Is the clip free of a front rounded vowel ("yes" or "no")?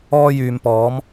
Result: no